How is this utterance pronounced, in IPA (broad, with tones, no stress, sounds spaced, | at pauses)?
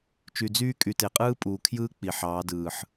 t͡ʃ y˨ d͡z yː˦ kʼ y˨ t e˨ qʼ ɯː˦ pʼ uː˨ kʰ j ɯː˦ k͡p i˨ ħ ɑː˨˦ d ɯː˨ ħ